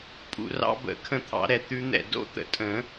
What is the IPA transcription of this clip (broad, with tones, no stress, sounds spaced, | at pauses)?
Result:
pʼ ṵ˨ r ɑ̰˦˥ b ə̰˨˩˦ kʰ ə̃˦˨ t̪ʰ ɑ̰˨˩˦ ɾ ɛ˨ t̪ ʉ˦˥ n̪ ɛ̰˦˨ d o̰˦˥ t̪ ə̰˨˩˦ tʼ ə̃˨˩˦